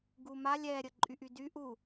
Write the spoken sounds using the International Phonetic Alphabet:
ɡuma lʲɛɾʲəǃʼyʔy dyʔ u

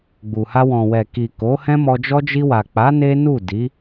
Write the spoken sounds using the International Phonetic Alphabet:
ɡ͡bu˨ha˧ wɔ̃˨wɛ˨ki˨ ko˨˦hɛ̃˦mɔ˧d͡ʒɔ˦ d͡ʒi˧wa˨k͡pa˨˦ ne˦ nu˦˨ di˨˦

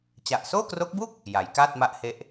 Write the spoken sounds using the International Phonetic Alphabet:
t͡ɕa˨˩ʔsoː˥˩kro˦˥k̚bu˥˩k̚ | ja˩˦jkaː˥˩t̚ma˦˥ʔhe˦˥ʔ

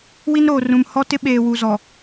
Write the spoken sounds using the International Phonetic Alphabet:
wi˦nɾoː˨rũ˨m hɔ˦tɪ˦ ɓeː˨wu˨ zɔ˨

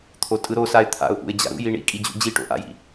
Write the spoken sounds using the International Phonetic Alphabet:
t̪ʰotʼɯɾosaɪ̯ t̪ʰa̰ʊ̯ʔṵɪ̯ d͡ʑa̰ɾṵji ɳḭkʼi d͡ʑṵd͡ʑiʈo̰ ʔa̰jḭ

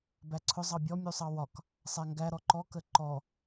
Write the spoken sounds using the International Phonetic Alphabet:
bæǀʰʊ zˤɑbʲɔ mʲusˤɑwɒk | sˤæŋɡæ ɾɔǃɔ kəǃɔ

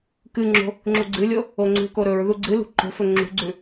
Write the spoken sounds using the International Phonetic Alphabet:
kɨŋ͡ǁo̤ | ŋ͡ǁuɡ͡ǀɨlʲo | oŋ͡ǀṳko ɾɵɹ ðuɡ͡ǀɨlṳ ǃo̤fɵ ŋ͡ǁṳɡ͡ǀʉ

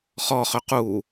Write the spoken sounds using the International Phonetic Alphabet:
χɔχø qu

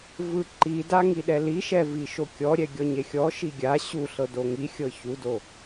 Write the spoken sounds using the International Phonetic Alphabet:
vɯǃida ŋiɗɛliʃɛ viʃokʲɔɾʲɛ ɡʲɔɲexʲɔʃi ɡʲa ɕuɬɤ doŋixʲɤ çudo

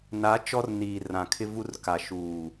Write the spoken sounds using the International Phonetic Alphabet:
na˨˦ t͡ʃɔ˦rniː˨ rã˨kʰɪ˦vu˦r ka˨ʃuː˨

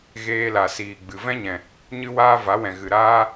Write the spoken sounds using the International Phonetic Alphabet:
ɣeː˧la˨ siː˨ ɡ͡bɨ˨ vɛ̃˦ɲɛ̃˨ | ɲɨ˦waː˦ va˨˦wɛ̃˨ ɣɨ˨ɾaː˦

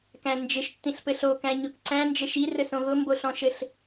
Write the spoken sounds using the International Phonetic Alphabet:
kæ̃nd͡ʒɪʃ tːĩɬpɘɬo kæ̃ɲʊkǀæ̃ nd͡ʒɘʃi rɘsõɣʊ mboɬɔ̃ʃɘɬ

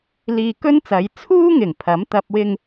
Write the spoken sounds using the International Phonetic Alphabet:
liː˧kɵ˥nt͡sɐ˨˧j t͡sʰuː˥ŋɪ˨˩ŋ pʰɐ˨˥mt̪ɐ˧p̚ wɪ˨ŋ

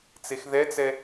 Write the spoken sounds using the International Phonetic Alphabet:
t͡sexðɛt͡sɛ

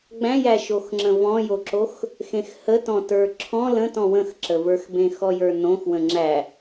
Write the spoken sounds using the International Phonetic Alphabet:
ɡ͡bæ̃jæʃoxŋ͡ǁə̃ vɔ̃joǁox | xẽxhətɔ̃ tə˞ǁʰɔ̃ lə̃tɔ̃ wə̃xǁəvə˞xbẽ xɔjə˞nõx wə̃ŋ͡ǁæ

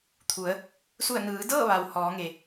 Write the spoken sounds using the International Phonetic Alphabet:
t̪ʰu˩˧ə̯ | su˧˩ə̯nɯː˩˧dɤː˥˨ʋa˩w hɔː˩˧ŋe˩

